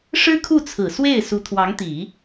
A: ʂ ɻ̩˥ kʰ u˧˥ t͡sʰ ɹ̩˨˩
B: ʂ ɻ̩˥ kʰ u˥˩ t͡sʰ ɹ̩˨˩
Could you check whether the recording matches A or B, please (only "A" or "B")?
B